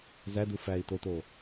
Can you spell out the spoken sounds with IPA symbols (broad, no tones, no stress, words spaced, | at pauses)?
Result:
zæ dufæi̯toto